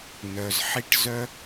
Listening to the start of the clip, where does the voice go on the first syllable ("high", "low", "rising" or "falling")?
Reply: low